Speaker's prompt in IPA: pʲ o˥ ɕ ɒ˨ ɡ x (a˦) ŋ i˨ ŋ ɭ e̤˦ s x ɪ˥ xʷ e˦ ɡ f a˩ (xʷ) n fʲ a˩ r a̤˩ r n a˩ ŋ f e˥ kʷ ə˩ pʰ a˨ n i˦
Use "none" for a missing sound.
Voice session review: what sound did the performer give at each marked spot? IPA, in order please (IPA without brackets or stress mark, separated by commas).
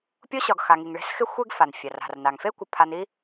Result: a˨, none